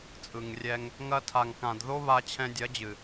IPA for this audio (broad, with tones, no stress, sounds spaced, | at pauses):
t͡sʼ ɯ˨ ŋ rʲ ɛ˧ ŋ | ŋ ɐ˧ tʰ a˨ ŋ k ã˨ d ð o˦ β a˧ t͡ɕʰ ɛ̃˧ dʲ ɐ˨˦ d͡ʑ ɨ˨